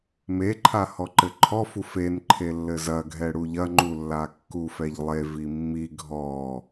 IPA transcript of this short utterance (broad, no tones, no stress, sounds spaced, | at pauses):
m e ǃʰ a h ɔ ǃ ɘ ǃʰ ɔ f u f e n ǃʰ e lː ɘ z ɐ ɡʱ ɛ ɽ u ʎ ɐ ŋ͡ǃ u lː a kː u f ɛ ʎ lˠ e v i mː i ɡʱ ɔ